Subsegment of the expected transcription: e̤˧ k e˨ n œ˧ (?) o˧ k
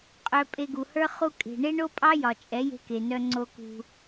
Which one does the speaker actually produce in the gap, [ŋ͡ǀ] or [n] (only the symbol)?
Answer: ŋ͡ǀ